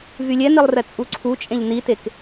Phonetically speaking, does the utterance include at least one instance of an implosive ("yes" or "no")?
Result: no